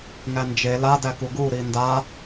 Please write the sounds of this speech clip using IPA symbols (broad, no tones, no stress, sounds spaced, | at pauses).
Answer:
ŋ æ n d͡ʒ e l a d æ k u ɡ u ɾ i n d a